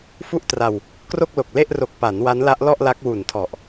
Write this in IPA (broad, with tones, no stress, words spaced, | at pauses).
fu˥˩ʔtra˧w | kro˥˩k̚lo˨˩k̚le˥˩ʔro˨˩k̚ pa˩˦n wa˦˥nla˦˥ʔlɔ˥˩ʔla˦˥k̚ wu˨˩ntʰɔ˨˩ʔ